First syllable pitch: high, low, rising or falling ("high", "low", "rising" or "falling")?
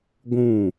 falling